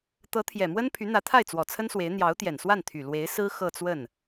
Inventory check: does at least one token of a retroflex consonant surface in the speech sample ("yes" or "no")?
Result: no